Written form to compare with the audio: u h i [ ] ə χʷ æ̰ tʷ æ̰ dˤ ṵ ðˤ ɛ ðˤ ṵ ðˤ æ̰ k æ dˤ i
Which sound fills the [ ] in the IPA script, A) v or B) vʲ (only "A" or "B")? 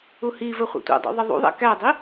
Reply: A